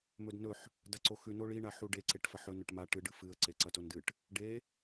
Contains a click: yes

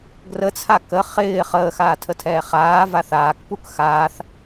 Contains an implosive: no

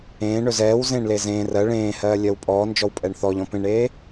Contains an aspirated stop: no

